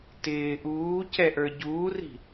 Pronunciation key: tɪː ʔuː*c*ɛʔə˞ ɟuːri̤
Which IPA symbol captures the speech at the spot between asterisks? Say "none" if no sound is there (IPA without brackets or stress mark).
c